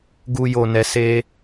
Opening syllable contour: low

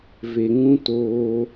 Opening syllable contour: low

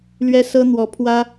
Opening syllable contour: high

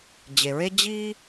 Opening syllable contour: low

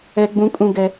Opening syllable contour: high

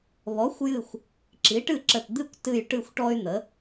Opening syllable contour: rising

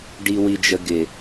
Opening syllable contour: low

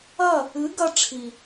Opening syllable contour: falling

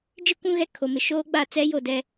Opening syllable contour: falling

